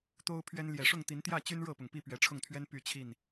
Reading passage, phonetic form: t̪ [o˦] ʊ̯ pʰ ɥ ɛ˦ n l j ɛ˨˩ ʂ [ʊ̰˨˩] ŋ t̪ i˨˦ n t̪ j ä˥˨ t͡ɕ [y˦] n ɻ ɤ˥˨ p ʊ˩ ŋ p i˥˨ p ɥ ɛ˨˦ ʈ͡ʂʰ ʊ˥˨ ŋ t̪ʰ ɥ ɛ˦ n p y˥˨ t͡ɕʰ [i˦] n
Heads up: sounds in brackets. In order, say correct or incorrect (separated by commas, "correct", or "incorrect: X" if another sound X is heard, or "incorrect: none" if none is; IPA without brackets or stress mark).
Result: correct, incorrect: ʊ˥˨, correct, incorrect: i˥˨